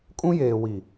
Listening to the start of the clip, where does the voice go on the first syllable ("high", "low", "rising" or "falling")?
high